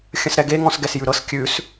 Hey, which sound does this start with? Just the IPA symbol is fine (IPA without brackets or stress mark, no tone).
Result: xʲ